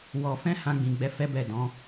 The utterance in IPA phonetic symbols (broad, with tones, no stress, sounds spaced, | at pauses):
w ɔ˨ f ɛ̃˧ h ã˧ ɡ͡b ĩ˨ ɡ͡b ɛ˨˦ f ɛ˦ b ɛ˦˨ d ɔ̃˨˦